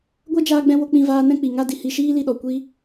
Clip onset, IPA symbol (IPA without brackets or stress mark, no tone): ɡʷ